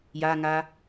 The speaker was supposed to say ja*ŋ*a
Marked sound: correct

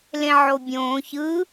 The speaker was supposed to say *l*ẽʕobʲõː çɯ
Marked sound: correct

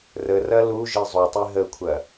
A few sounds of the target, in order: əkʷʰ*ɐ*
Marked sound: correct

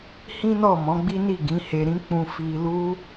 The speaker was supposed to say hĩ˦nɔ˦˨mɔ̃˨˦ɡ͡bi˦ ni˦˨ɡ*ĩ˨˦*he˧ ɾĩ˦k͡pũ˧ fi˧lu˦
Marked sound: correct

